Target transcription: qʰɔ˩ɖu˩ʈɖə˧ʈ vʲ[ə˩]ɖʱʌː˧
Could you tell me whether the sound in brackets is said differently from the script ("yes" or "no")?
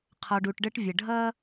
no